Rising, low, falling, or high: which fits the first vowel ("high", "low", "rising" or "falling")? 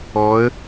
rising